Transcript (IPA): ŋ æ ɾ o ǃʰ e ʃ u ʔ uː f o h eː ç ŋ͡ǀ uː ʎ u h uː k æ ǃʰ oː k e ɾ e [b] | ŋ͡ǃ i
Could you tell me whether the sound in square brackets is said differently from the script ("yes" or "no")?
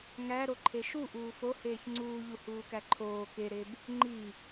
no